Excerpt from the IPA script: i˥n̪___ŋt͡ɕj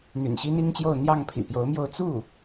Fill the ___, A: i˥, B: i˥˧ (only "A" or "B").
A